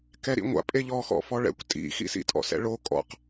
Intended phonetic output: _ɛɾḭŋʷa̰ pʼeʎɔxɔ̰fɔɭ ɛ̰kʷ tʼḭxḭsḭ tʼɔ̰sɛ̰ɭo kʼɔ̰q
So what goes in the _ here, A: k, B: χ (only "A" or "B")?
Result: A